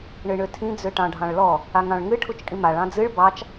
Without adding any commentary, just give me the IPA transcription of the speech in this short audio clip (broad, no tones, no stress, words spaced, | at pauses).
ɳɨɳøtʰĩ d͡zøʈɑ̃ɖʱɑ̃ɭlɔ | aŋɑ̃ɭŋɨ ʈʰut͡ʃkʼĩmaɭ ɑ̃d͡zɨɭ bɑt͡ʃ